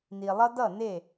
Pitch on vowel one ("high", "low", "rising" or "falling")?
low